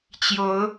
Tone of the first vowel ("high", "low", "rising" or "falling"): rising